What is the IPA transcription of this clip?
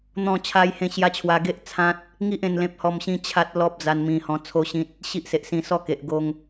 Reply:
n̪ɔ̃˥˧ t͡ɕʰa˧jhẽ˧ɕja˧ t͡ɕʰwa˧ɡe˦ʔ t͡sʰã˦t̚ | ŋi˦ʔ ẽ˥˧nlẽ˦p̚hɔ˥˧mɕĩ˦ t͡ɕʰa˦t̚lɔ˦p̚d͡za˧n mĩ˧hɔ̃˧ t͡sʰo˥˧ɕĩ˦t̚ | ɕi˦ʔse˨ʔsĩ˧ sɔ˥˧ke˨ʔ ɡo˧ŋ

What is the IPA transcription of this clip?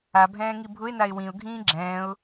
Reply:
abʱɛ̃ːŋi bʱʊɪ̯naɪ̯ wĩʊ̯ɡʱĩː ɡ͡ǁɛ̃ːʊ̯

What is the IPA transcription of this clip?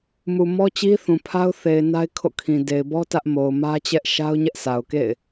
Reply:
mu˨ mɔ˦t͡ɕi˦θũ˨pʰa˦ʊ̯ θe˨ɪ̯na˦ɪ̯kʰo̰˦˨kʰĩ˨ de˨ɪ̯bɔ˦ tä˦ʔmo˨ʊ̯ mä˦t͡ɕɛ˦ʔ ʃa˦ʊ̯ ɲɛ˦ʔsa˨ʊ̯kḛ˦˨ɪ̯

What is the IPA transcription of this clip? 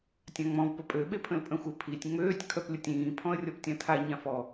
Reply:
tʲãŋ͡mɔ̃v pəpʼø ɓepʰə̃lpʼə̃xʷə pʰitʲ ŋ͡møːtʲ kʰœplʲətʲĩː pʰɔ̃ə̯rʲɔptʲãtʰa ɲãfɔ

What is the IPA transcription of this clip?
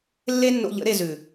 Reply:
lːe˦nːo̰˧ʎə̰˨˦ ɾe˧zʉ˨

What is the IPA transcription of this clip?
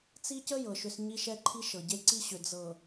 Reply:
t͡si˦cə˦ jɤ˨ʃʏ˦s ɲi˦ʃɛ˦ǃʰi˦ʃɤ˨ ɟe˦ǀi˦ɕʏ˨ d͡zɤ˨

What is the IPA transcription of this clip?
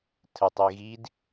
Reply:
tʰətˤ iɣid

